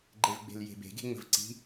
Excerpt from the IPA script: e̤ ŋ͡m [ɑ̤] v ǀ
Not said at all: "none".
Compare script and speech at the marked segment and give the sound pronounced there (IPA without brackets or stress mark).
ə̤